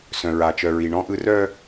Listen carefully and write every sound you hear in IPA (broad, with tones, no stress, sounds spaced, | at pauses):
s œ̃˦ ɹ a˦ t͡ʃ œ˦ ɹ i˦ ɳ ɔ̃˦ ʔ ɯ˦ r œ˦